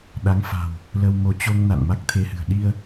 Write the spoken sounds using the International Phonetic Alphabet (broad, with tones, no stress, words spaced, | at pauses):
ɗa˨˦ŋfa̤˨˩w | lə˧wmo˧ t͡ɕo˧ŋ na̰˧˨nma˦˥k̚t̪ʰe˧hɨ̤˨˩ə̯ ɗi˧ə̯